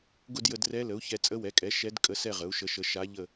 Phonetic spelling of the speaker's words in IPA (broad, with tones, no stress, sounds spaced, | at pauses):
ɡ ʊ˥˧ d j ə˧ d r ɛ˧˥ l ə˩˥ u̯ ç ɛ˧ t͡sʼ ə˧˥ w ɛ˩˥ kʼ ɛ˩˥ ʃ ɛ˧˥ d kʼ ə˧˥ s ɛ˥˧ ʁ ə˩˥ u̯ ʃ ə˧˥ ʃ ə˧˥ ʃ a˧˥ ʎ ə˥˧